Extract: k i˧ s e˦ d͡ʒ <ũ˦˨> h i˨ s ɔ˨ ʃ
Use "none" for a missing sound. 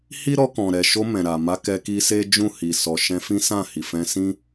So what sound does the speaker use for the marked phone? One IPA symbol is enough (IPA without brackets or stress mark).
ũ˦˨